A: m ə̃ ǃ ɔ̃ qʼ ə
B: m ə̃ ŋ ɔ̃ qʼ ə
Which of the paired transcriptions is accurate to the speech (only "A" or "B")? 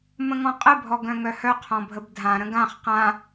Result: B